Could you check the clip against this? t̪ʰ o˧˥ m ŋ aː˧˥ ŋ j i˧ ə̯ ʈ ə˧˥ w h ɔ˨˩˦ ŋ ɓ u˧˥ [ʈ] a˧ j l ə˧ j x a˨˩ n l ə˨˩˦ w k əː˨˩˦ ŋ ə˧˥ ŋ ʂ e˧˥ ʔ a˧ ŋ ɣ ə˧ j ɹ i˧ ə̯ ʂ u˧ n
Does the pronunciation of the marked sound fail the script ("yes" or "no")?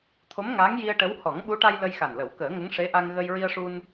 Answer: no